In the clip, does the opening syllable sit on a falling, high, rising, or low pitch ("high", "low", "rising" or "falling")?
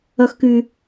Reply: high